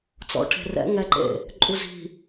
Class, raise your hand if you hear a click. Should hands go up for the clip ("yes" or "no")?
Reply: yes